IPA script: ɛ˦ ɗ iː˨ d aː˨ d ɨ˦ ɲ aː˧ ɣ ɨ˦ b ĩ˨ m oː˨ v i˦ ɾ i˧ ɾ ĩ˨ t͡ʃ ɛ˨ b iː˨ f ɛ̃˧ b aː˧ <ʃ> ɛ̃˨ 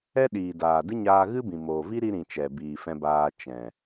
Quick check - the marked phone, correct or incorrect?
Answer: incorrect: t͡ʃ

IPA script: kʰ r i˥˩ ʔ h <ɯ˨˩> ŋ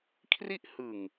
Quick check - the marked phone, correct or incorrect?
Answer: correct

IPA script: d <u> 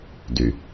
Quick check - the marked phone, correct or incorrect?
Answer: incorrect: y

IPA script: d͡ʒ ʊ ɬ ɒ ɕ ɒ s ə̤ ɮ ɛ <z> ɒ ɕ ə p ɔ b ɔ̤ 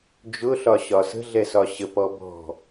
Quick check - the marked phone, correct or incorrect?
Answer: incorrect: s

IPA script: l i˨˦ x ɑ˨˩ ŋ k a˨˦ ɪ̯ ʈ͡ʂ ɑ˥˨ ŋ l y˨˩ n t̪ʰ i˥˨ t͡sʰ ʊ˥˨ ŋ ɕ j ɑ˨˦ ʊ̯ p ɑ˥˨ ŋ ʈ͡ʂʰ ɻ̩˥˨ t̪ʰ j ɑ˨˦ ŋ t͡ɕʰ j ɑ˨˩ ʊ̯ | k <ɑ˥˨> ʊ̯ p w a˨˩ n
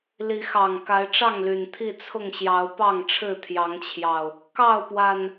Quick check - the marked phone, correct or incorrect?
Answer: correct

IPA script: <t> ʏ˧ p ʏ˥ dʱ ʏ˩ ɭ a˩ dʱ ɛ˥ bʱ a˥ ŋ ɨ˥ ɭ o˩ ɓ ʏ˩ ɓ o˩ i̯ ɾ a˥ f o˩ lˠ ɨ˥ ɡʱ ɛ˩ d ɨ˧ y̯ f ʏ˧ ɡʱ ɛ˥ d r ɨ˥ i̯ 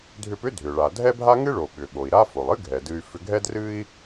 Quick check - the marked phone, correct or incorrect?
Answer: incorrect: dʱ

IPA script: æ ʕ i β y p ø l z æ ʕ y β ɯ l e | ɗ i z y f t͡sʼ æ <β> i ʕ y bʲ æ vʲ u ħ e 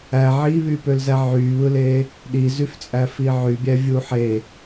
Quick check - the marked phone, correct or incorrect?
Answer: incorrect: f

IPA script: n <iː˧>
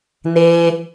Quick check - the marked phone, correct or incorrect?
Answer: incorrect: eː˧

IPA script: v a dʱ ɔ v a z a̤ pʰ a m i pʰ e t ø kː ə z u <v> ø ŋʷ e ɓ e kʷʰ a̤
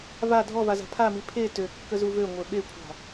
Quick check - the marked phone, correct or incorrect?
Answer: correct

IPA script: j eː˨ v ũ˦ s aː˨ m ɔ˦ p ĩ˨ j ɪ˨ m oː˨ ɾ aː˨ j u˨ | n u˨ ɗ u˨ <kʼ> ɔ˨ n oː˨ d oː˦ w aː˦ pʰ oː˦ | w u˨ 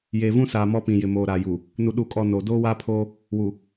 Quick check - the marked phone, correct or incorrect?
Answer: correct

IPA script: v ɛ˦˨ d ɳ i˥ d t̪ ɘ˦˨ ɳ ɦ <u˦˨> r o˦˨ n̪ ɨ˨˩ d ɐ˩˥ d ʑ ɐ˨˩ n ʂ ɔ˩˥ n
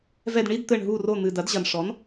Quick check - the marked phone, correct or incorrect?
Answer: correct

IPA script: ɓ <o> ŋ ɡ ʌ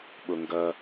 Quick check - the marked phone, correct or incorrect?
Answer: correct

